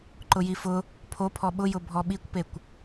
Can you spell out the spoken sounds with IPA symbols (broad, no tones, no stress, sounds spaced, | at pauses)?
ǃ ʊ j i f ʊ | pʰ o pʰ ɔ ɓ ʊ j ʊ bʱ ɔ ɓ i kʷ p e kʷ